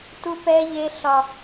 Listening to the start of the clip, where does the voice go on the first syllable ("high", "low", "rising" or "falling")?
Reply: high